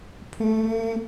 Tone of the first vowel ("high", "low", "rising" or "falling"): high